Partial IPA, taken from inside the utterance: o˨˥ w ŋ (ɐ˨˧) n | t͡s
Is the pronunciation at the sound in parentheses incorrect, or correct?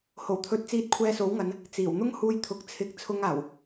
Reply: correct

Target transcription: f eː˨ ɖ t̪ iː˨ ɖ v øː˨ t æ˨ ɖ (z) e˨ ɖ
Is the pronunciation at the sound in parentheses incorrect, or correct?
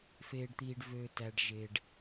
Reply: incorrect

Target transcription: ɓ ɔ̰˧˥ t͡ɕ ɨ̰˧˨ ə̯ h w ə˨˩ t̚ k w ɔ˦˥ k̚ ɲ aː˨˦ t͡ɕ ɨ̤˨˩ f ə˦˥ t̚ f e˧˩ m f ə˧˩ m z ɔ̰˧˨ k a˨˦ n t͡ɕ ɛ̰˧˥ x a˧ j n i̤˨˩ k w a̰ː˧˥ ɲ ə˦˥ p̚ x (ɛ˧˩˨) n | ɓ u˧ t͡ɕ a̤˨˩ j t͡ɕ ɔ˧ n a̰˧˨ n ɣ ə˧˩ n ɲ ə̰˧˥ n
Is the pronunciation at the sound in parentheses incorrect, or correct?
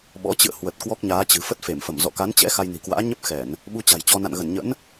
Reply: correct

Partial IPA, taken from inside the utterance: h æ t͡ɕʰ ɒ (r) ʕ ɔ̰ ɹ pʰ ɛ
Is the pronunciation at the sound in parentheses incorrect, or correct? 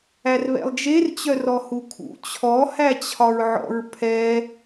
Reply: incorrect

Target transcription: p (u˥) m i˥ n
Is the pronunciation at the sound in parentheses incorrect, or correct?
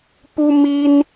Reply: correct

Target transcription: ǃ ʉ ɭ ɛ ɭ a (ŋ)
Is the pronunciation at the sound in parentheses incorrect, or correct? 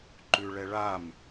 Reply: incorrect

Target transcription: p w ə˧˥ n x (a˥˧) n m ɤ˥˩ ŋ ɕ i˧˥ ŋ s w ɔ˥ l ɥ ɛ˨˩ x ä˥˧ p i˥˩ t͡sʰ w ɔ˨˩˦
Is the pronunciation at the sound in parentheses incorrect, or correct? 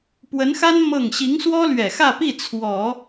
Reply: incorrect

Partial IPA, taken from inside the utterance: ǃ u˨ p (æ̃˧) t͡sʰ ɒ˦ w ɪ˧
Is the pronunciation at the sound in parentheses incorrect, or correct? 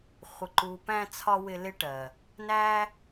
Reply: correct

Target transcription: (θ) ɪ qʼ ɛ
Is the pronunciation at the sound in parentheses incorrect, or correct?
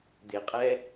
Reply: incorrect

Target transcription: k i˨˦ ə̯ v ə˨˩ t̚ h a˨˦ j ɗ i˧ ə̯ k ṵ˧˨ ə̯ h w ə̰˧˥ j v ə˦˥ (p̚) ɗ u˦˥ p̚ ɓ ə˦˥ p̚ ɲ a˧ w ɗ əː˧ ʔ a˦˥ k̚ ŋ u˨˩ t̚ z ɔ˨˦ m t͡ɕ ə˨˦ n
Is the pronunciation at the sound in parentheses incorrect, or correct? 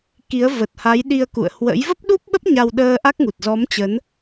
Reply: correct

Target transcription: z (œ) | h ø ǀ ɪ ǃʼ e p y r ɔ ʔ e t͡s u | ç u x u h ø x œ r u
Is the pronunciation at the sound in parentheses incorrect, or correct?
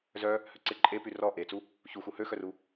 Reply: correct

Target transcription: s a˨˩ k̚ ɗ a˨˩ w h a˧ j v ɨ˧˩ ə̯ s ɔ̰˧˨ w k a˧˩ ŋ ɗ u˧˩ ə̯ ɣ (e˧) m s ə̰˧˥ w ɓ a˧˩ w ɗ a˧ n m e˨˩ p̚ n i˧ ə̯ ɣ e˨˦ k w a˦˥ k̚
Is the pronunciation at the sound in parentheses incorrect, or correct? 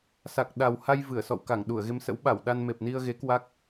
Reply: correct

